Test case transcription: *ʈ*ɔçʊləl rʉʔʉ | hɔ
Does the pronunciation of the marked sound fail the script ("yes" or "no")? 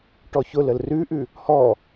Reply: no